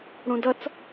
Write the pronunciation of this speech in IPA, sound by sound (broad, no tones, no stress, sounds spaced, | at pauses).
ɽ ũ d ʌ t͡s